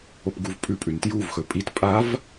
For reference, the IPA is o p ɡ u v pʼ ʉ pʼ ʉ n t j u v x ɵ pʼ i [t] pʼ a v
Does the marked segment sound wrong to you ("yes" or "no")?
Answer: no